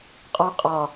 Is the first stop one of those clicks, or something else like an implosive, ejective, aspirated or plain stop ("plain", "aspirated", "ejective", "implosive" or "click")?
ejective